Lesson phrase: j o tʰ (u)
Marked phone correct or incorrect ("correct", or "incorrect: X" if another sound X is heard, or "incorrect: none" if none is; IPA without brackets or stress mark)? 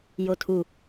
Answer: correct